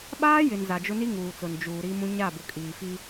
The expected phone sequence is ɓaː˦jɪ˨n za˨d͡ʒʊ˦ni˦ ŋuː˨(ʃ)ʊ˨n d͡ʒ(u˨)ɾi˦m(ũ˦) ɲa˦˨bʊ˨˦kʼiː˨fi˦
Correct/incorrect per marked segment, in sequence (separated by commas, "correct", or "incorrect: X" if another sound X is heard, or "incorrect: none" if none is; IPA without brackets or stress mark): incorrect: t͡s, incorrect: uː˨, correct